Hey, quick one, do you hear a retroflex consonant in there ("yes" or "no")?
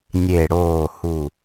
yes